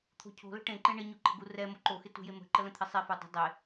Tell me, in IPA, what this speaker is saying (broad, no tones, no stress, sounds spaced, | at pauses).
t̪ʰ o̤ cʰ o̤ l ə̤ ʈ ẽ ǃ ẽ ɳ ɪ ɲ u ǃ ə̤ ɡ u r ɛ m o ǃ o x ɪ t ṳ j e m ə̤ ǃ ə l ə̃ t̪ʰ ɪ sˤ e f u dˤ ə̤ dˤ e